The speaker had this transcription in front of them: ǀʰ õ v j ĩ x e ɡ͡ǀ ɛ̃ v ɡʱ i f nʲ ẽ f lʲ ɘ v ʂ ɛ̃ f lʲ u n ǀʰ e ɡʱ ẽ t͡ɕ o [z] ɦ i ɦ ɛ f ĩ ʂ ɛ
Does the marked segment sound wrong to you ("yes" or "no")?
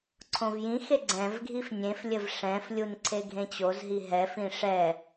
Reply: no